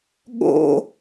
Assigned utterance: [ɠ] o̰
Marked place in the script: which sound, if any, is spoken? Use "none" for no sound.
ɠ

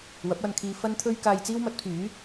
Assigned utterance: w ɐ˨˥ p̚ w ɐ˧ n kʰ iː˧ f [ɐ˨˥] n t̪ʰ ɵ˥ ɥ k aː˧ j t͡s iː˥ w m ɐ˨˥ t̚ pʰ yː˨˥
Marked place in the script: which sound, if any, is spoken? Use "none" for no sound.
ɐ˥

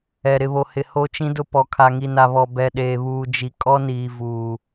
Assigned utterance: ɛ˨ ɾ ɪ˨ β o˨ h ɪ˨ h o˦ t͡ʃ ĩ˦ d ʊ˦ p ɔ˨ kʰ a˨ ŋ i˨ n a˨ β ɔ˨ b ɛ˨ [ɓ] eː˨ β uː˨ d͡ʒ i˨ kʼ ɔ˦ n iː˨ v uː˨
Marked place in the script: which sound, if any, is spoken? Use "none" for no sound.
ɗ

